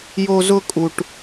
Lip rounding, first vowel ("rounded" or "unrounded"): rounded